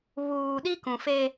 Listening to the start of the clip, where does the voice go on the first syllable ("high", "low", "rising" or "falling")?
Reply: low